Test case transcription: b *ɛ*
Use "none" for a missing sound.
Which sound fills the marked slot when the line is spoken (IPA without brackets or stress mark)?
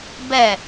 ɛ